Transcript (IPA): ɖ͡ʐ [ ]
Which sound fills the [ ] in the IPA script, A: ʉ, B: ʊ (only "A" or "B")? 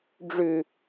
A